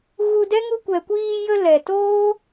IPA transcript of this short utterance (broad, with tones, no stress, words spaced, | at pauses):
ɣu˧dɛ˦ ŋu˧kʷɛ˨kʷiː˧jə˧ lɛ˨toː˦